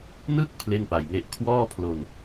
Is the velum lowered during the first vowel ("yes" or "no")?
no